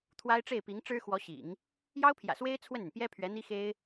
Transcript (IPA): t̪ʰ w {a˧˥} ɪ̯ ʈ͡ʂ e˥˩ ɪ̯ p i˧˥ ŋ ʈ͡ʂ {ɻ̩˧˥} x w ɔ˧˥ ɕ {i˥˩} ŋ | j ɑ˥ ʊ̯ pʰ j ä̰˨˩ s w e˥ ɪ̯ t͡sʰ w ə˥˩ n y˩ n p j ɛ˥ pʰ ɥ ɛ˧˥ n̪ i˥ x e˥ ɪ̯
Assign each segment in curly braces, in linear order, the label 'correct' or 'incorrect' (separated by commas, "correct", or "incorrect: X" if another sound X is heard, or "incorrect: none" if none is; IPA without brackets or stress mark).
incorrect: a˥, incorrect: ɻ̩˥, incorrect: ḭ˨˩˦